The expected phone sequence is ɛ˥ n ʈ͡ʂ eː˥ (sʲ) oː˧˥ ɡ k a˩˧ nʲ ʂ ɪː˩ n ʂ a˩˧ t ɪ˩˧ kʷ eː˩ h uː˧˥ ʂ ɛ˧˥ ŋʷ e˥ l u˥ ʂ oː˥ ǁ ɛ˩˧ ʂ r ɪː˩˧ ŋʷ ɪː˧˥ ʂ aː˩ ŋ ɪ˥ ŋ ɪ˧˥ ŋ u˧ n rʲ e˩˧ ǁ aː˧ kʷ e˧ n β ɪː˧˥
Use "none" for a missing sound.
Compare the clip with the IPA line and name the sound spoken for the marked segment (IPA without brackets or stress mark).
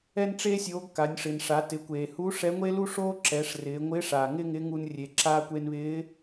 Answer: sʲ